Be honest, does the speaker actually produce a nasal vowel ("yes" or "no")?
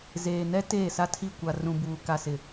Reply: yes